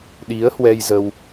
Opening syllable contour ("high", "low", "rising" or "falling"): rising